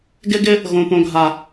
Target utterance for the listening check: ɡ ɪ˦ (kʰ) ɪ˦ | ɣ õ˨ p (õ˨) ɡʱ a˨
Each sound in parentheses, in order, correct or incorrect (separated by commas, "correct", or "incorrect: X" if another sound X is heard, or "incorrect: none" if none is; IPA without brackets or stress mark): incorrect: ɡ, correct